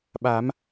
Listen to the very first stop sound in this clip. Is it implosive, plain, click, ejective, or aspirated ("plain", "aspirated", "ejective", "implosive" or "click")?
implosive